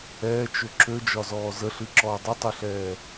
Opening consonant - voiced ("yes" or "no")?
no